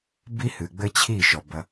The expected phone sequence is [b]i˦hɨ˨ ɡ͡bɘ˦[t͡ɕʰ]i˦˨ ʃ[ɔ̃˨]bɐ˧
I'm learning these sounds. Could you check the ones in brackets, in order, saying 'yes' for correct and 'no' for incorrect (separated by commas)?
yes, yes, no